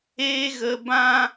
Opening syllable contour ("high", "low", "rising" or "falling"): high